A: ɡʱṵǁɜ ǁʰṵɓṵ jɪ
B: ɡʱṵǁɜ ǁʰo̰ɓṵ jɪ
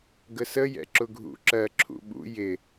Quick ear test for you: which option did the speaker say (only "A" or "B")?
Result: A